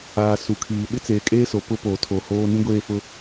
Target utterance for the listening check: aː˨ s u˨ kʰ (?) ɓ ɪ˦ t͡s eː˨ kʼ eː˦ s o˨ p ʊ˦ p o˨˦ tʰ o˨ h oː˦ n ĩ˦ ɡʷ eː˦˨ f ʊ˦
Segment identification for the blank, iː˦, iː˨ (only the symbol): iː˨